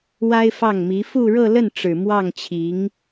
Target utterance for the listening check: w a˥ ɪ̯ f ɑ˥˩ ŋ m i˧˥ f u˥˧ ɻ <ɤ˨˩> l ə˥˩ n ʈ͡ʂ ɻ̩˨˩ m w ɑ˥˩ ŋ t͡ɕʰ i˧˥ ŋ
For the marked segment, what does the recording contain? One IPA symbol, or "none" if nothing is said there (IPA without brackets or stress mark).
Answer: ɤ˥˧